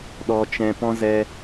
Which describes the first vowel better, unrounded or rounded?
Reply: rounded